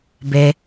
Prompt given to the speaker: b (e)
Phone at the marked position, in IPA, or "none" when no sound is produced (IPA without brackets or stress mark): e